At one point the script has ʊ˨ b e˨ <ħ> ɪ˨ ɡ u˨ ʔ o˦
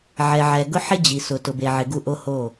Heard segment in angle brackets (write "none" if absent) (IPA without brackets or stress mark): ʕ